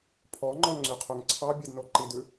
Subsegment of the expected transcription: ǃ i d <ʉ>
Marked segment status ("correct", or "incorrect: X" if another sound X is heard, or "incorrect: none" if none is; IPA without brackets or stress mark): correct